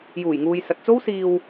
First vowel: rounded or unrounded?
rounded